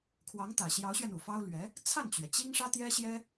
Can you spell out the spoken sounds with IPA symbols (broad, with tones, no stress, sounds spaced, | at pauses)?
kʰ w ɑ˧˥ ŋ t̪ ä˨˩ ɕ j ɑ˧˥ ʊ̯ ɕ ɥ ɛ˧ n u˨˩ f ɑ˥ ʊ̯ l ɥ ɛ˧˥ | t͡sʰ a˥˩ n t͡ɕ ɥ ɛ˩ t͡ɕ i˥ ŋ ʂ ä˥ t̪ j ɛ˥ ɕ j ɛ˥